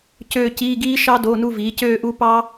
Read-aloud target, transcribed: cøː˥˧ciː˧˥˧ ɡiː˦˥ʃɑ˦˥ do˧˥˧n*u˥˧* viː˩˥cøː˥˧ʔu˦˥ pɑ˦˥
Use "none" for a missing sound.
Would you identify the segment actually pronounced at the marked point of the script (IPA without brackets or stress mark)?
u˥˧